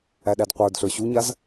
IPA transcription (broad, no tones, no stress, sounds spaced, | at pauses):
æ ɗ æ d qʷ ə˞ d ɬ ə˞ ɕ u ɲ a z